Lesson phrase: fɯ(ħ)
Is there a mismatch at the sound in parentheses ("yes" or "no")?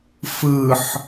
no